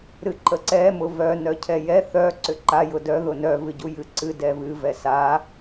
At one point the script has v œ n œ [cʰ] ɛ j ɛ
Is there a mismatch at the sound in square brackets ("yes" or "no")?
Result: no